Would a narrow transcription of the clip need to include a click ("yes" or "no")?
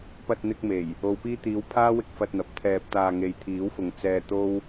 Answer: no